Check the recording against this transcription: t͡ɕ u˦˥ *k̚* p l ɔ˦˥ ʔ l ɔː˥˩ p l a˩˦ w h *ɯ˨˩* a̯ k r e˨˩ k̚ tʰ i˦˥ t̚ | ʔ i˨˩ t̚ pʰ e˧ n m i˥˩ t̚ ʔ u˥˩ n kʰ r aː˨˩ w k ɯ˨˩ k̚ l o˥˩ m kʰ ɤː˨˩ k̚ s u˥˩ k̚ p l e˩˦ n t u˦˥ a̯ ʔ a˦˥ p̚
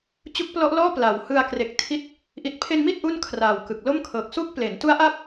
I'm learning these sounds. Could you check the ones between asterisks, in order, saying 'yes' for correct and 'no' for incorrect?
yes, no

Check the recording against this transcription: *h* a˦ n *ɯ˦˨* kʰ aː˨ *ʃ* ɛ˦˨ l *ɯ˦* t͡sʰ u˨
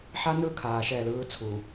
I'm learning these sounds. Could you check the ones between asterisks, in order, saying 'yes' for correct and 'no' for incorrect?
no, yes, yes, no

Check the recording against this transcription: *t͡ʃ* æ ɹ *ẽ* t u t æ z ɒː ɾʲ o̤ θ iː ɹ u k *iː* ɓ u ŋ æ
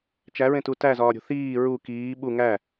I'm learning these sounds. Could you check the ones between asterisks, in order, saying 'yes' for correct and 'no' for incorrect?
yes, yes, yes

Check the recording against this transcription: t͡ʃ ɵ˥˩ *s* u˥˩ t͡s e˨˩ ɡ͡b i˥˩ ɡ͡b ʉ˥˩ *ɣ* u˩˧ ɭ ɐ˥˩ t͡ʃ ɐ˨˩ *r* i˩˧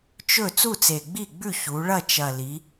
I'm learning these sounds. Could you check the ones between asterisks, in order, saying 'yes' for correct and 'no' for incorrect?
no, no, no

